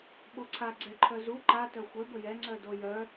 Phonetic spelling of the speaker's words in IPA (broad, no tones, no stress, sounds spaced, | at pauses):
ɓ o ǀʰ a ɡ͡ǀ ɛ ǃʰ œ z u ǃ a t œ xʷ ɛ b ə j ɛ ŋ͡ǀ œ d o j œ